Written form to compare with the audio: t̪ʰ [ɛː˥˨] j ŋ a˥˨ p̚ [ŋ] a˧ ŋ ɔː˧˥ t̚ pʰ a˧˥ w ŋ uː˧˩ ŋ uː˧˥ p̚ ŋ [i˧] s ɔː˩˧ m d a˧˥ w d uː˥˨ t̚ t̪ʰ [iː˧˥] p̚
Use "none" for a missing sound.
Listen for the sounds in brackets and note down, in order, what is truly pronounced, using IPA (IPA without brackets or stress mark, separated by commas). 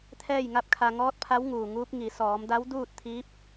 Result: ɛː˥˨, kʰ, i˩˧, iː˧˥